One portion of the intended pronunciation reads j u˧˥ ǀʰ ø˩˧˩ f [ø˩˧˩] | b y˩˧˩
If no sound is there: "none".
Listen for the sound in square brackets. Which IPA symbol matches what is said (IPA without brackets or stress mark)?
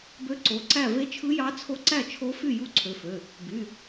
ø˩˧˩